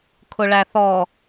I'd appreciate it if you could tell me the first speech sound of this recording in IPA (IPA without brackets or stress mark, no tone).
kʰ